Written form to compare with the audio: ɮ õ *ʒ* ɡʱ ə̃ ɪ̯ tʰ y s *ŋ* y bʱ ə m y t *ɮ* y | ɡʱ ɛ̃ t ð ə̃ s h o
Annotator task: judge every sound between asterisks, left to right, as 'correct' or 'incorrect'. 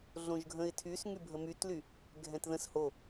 correct, correct, incorrect: l

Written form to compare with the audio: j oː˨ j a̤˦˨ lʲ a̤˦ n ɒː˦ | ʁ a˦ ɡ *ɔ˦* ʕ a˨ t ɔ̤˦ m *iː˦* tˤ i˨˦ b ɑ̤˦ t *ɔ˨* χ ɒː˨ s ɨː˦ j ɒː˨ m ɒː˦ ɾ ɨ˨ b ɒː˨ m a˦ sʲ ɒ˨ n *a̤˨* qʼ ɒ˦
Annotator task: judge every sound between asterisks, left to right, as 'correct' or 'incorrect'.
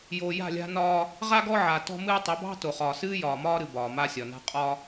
correct, incorrect: ɨː˦, incorrect: o˨, incorrect: a̤˦

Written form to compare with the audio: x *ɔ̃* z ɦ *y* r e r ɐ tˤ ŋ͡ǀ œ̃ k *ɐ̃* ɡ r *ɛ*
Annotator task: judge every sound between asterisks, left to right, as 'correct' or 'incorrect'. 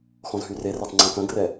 correct, correct, correct, correct

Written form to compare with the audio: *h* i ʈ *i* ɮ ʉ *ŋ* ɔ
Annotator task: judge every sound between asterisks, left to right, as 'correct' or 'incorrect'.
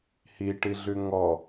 correct, correct, correct

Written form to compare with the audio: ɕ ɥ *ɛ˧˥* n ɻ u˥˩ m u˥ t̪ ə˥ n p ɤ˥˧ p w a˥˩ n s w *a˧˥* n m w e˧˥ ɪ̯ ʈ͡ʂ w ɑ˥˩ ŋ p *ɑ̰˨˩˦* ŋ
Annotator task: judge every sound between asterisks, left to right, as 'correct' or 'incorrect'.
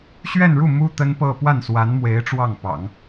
incorrect: ɛ˥˧, correct, correct

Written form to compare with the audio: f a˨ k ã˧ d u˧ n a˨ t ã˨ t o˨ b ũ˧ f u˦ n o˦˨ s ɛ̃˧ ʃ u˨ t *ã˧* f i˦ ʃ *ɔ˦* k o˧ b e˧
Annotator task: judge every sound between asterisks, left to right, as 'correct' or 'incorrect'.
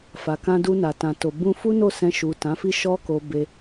incorrect: ã˨˦, correct

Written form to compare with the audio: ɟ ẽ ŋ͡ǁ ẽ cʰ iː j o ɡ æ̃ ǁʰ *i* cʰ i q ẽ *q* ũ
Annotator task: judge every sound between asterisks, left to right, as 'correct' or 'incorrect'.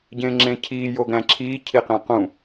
incorrect: iː, correct

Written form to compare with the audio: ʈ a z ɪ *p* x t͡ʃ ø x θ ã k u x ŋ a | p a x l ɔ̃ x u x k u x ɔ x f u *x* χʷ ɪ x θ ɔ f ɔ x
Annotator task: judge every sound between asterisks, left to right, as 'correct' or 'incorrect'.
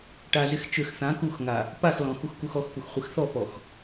incorrect: none, correct

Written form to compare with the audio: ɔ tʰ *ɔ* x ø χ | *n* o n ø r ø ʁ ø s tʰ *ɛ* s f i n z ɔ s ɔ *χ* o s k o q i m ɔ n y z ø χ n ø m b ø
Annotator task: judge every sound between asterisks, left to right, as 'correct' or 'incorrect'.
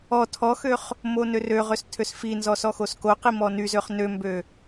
correct, incorrect: m, incorrect: ø, incorrect: x

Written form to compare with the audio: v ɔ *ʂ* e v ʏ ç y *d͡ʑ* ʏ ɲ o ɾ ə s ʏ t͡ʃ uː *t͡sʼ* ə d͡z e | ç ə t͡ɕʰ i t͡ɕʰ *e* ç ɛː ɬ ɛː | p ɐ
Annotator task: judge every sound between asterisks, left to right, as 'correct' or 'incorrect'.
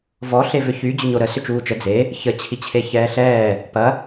incorrect: ɬ, correct, incorrect: t͡ʃ, correct

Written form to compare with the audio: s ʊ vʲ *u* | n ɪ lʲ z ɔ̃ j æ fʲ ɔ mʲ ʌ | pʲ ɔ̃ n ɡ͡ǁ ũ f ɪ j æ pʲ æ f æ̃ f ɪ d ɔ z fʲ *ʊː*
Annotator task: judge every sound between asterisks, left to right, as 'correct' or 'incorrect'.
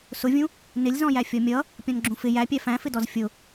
incorrect: ũ, incorrect: ʊ

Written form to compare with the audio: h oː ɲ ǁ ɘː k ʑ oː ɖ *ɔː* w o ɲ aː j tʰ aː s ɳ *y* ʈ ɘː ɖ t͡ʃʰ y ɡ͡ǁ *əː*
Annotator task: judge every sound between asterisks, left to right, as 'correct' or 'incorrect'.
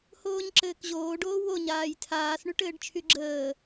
incorrect: oː, correct, correct

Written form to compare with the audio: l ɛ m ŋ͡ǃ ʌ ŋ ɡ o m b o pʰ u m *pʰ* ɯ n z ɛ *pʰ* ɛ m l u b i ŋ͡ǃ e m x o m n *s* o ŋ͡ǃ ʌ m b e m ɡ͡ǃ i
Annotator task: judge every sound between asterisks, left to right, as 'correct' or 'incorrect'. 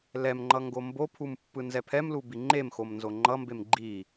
incorrect: pː, correct, incorrect: z

